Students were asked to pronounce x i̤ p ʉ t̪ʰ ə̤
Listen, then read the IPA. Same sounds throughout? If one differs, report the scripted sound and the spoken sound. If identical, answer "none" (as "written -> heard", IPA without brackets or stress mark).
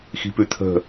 none